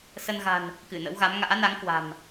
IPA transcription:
sə˧nɣa̤˨˩n | kɨ˧˩nə̰˧˥wɣa˨˦m ŋa̰ː˧˥na˨˦ŋ kwa̤˨˩m

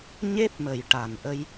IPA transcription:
ɲe˦˥p̚mə˨˩jʈa˨˩n ʔə˧j

